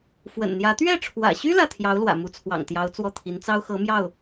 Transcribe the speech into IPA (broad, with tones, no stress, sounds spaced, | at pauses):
f w ə̰˨˩ n n̪ j ä˧˥ t̪ ɥ ɛ˥˩ ʈ͡ʂʰ w ä̰˨˩ ɕ y˥ l ä˥˩ t̪ʰ j ɑ˧˥ ʊ̯ l w ä̰˨˩ m u˧˥ t͡sʰ w ɑ̰˨˩ ŋ t̪ j ɑ˧˥ ʊ̯ t͡s w ɔ˥˩ t̪ʰ i˧˥ n t͡s ɑ˥ ʊ̯ x ɤ˧˥ m j ɑ˥˩ ʊ̯